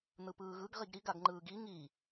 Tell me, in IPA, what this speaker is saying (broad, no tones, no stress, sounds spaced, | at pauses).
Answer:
n̪ ɯ p ɯː ɣ ɯ ɡ ʁ i ɡ ɾ i ɡ a ɡ ŋ͡ǃ ɯː ɡ i ŋ i